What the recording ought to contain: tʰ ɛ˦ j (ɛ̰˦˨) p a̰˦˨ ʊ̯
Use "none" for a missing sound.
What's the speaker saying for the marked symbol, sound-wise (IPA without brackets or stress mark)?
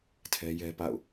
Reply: ɛ˦